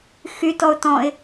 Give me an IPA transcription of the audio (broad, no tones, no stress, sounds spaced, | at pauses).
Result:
x y t ɔ ʊ̯ t ɔ̃ ɪ̯